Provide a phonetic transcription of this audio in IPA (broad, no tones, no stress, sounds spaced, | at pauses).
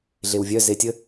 ɮ e w vʲ œ z e tʲ ə